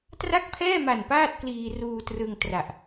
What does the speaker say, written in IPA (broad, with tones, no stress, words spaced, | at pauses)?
tra˥˩k̚pʰɛː˥˩ma˨˩n paː˥˩t̚kliː˧ruː˧ trɯ˧ŋtra˨˩ʔ